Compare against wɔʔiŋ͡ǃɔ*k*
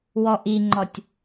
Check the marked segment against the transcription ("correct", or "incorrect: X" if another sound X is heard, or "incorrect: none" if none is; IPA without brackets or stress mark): incorrect: tʲ